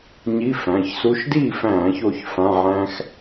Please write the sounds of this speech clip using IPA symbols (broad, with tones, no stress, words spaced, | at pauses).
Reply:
ɲi˧˥˧fæ̃˩˧˩çsu˧˥˧ʃ di˥˩fæ̃˧˩˧ço˧˩ç fã˧˥˧ʕæ̃˦˥x